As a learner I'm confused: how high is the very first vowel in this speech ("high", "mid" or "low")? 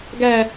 low